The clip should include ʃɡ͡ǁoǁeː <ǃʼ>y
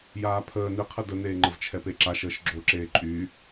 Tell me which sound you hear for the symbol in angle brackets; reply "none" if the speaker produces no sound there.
ǃʼ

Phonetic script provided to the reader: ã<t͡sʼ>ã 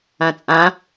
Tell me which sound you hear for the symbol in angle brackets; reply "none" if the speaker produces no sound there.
t͡sʼ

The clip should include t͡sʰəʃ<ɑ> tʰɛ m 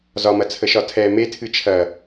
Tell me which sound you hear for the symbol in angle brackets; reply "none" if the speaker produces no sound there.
ɒ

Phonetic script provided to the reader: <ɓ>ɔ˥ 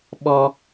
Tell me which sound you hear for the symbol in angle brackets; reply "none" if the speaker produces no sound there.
ɓ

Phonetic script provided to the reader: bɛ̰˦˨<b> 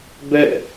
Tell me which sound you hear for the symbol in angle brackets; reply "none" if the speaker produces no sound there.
none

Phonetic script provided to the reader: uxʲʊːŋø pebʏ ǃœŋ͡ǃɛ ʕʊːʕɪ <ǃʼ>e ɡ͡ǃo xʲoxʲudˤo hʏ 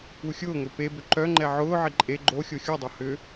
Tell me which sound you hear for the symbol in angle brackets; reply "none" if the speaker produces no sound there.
ǃʼ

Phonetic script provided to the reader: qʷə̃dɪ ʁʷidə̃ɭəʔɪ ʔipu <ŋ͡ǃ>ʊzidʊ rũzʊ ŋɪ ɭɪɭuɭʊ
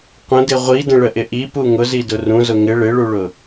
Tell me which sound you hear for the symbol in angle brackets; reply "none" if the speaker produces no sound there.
ŋ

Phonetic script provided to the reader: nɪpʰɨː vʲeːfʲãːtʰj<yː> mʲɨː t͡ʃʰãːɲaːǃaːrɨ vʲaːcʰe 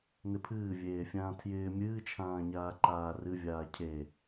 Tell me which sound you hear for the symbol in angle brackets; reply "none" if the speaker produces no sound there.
ɪː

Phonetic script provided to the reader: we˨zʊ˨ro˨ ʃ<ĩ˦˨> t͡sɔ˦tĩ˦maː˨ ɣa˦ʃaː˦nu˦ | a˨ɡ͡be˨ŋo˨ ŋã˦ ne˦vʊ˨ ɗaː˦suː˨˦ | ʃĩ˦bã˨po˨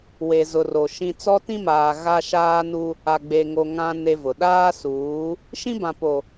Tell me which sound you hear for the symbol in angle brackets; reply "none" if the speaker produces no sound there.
ĩ˨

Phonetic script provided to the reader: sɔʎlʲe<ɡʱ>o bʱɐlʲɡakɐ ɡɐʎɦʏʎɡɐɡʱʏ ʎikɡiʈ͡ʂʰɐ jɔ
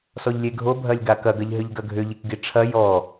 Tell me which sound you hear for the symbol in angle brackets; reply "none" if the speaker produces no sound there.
ɡʱ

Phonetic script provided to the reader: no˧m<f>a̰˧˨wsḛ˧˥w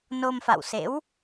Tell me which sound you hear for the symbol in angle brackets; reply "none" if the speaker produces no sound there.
f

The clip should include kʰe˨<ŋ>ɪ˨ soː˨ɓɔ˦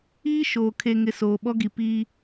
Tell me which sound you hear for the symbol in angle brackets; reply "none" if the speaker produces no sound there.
ŋ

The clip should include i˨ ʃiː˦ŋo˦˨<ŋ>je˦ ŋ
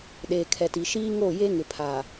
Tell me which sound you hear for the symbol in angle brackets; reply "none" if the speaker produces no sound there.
none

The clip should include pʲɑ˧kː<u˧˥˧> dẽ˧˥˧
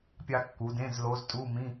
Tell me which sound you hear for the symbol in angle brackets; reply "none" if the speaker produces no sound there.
u˩˧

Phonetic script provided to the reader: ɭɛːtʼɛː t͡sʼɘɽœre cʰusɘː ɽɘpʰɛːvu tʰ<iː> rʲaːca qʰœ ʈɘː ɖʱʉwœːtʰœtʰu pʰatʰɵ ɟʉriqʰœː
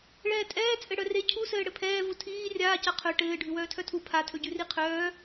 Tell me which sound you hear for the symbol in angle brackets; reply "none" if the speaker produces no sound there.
iː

